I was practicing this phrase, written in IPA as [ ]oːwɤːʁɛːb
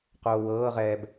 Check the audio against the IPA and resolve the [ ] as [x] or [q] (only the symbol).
q